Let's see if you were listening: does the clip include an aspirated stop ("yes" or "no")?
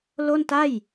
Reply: no